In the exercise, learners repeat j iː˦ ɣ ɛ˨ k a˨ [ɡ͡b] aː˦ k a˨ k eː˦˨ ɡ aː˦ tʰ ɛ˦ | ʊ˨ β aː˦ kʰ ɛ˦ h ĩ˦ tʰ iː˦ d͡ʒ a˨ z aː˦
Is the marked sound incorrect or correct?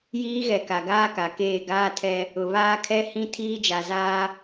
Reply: incorrect